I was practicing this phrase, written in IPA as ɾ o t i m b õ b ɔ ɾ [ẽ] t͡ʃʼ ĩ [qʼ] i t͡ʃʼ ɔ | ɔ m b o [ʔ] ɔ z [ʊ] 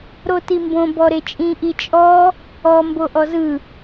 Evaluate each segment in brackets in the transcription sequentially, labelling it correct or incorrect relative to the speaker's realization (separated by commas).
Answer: incorrect, incorrect, correct, incorrect